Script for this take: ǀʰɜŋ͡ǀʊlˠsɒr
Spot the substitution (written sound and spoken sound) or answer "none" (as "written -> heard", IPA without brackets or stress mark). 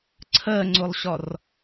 s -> ɕ